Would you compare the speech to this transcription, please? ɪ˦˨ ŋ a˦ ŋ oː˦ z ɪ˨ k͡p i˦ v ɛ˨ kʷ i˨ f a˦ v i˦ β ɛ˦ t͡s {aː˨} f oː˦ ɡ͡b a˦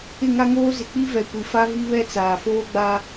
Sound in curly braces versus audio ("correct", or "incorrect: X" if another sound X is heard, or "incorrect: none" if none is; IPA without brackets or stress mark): correct